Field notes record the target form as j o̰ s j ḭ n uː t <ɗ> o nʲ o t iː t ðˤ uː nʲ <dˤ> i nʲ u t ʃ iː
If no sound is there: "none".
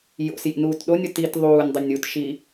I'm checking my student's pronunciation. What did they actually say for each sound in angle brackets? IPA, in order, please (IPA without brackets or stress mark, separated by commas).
ɗ, dˤ